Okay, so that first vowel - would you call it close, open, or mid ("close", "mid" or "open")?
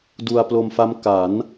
close